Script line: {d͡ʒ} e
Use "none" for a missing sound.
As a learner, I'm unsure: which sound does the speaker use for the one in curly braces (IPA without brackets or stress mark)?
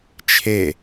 t͡ʃʰ